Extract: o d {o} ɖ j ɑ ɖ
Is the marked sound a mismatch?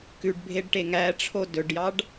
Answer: yes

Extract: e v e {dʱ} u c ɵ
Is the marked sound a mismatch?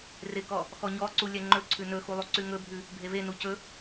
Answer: yes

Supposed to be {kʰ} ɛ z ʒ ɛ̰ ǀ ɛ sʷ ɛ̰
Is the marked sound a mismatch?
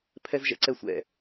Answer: yes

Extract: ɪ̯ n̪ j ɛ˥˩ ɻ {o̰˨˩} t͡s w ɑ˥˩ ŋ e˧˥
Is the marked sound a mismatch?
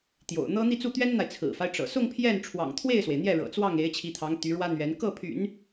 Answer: yes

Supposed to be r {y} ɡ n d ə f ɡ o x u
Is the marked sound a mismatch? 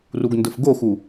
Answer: yes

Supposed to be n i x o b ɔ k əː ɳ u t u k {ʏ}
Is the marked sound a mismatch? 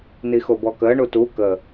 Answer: yes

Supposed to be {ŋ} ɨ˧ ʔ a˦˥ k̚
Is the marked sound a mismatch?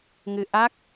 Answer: no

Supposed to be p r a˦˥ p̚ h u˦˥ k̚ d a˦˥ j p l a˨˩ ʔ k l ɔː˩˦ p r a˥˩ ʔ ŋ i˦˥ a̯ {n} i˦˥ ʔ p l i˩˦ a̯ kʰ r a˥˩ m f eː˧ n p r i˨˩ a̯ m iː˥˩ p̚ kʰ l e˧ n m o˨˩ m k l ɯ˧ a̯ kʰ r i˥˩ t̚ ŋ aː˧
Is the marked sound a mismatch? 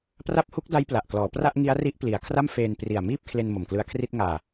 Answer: yes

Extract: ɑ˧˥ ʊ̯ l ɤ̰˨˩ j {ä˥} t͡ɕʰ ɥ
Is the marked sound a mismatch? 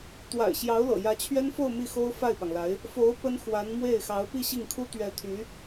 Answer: yes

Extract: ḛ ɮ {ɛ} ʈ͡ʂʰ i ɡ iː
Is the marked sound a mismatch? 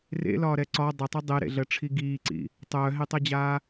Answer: yes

